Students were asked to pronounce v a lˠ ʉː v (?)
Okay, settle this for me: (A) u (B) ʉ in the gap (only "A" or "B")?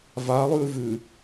B